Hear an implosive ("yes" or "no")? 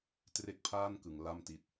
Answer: no